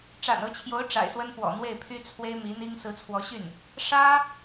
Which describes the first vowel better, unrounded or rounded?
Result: unrounded